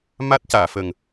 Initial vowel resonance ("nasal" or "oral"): oral